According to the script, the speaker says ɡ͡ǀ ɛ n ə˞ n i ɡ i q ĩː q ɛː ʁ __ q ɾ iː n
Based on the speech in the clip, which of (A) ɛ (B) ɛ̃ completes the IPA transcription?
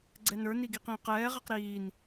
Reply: A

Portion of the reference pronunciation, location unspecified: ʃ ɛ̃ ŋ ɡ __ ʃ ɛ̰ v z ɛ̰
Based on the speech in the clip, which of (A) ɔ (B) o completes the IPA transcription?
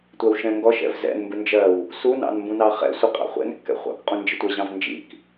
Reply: A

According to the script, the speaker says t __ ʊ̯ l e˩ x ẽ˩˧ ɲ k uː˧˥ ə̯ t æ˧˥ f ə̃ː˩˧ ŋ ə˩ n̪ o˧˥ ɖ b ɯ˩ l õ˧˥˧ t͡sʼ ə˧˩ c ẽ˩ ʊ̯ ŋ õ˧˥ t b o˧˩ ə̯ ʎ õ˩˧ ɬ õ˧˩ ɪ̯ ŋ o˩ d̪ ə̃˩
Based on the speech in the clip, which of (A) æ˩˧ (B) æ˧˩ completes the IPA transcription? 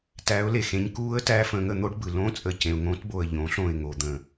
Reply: A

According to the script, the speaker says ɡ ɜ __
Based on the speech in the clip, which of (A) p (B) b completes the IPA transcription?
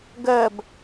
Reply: B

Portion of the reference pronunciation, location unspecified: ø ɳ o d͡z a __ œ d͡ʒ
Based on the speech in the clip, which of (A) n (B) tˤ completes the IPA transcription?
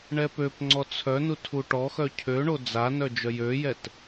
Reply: A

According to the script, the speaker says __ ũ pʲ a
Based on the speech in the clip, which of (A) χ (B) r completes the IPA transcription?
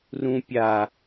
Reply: B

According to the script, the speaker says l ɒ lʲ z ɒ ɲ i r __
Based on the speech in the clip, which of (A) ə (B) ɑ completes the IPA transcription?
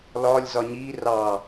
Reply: B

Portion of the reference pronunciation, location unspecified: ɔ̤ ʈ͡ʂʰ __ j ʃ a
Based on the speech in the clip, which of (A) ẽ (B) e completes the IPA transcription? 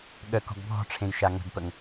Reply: A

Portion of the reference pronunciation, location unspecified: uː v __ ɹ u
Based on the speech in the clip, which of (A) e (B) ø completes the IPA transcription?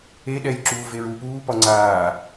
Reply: A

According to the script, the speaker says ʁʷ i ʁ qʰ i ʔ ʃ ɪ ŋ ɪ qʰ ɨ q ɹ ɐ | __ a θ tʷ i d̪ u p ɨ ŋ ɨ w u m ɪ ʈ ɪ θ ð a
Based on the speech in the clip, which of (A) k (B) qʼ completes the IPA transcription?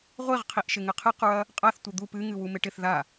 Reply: B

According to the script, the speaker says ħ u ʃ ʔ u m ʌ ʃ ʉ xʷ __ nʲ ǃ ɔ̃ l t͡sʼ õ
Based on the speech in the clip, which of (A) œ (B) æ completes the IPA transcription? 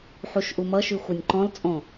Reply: A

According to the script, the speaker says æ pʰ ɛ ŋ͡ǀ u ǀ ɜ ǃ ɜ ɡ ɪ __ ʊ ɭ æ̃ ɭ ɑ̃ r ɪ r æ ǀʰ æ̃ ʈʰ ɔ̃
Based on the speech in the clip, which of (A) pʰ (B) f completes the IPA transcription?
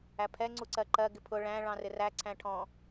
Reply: A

